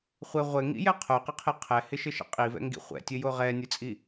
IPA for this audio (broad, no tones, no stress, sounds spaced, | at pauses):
χʷ ɘ ʁʷ ɘ ŋ ḭ j ɛ qʰ o q ɪ qʰ ɪ qʰ ɛ h ɪ ʃ ɘ ʃ ɛ̰ qʼ i v ɛ̰ ŋ ɡ ḭ χʷ ɛ̰ tʲ ɘ j o ʁ ɛ nʲ ɘ t͡sʼ i